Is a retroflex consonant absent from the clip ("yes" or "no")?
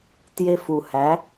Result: yes